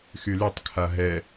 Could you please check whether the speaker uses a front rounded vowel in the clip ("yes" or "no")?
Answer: yes